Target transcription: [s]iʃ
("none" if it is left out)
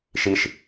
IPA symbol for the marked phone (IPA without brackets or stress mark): ʃ